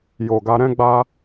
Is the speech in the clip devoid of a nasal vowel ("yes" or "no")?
no